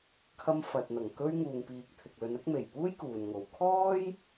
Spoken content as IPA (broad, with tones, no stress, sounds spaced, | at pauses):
kʰ ɐ˥ m f ɐ˨ t̚ n̪ ɐ˨˩ ŋ k ɵ˥ ɥ ŋ uː˨ ŋ p iː˨ k̚ t̪ʰ ɪ˨ k̚ l ɵ˨˧ n ɐ˨˥ k̚ m e˨˩ j p uː˥ j k uː˨ n ŋ o˨ w kʰ ɔː˥ j